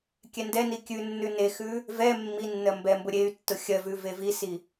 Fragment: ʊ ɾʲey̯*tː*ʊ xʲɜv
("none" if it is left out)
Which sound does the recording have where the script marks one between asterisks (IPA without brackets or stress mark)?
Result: tː